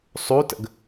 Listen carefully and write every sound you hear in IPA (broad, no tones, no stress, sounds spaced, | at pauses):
sˤ u t ə̰ ɡ